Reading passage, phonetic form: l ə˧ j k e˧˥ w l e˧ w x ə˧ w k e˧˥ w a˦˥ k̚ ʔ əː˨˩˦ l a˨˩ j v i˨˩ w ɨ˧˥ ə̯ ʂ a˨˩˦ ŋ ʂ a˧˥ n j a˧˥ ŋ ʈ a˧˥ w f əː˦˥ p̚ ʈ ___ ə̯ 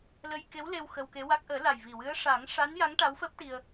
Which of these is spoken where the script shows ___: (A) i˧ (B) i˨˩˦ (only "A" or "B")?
A